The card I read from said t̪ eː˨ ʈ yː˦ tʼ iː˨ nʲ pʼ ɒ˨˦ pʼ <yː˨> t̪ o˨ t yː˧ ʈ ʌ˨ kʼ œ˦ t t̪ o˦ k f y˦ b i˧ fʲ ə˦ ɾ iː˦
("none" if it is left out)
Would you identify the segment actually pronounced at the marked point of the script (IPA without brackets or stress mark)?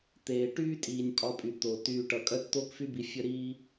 y˨